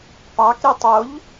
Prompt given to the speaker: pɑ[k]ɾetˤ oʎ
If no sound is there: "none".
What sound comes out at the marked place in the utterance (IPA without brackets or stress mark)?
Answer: k